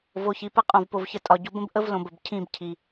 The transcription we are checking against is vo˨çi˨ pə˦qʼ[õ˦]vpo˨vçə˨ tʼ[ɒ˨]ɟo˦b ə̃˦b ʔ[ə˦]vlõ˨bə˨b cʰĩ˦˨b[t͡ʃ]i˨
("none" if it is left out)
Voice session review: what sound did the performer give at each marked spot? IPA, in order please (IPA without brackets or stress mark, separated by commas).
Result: õ˨, ɒ˨, ə˦, cʰ